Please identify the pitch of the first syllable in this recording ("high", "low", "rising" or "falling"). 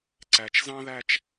low